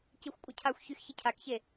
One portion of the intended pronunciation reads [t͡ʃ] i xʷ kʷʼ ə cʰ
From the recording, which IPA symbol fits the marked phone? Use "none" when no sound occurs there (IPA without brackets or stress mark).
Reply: c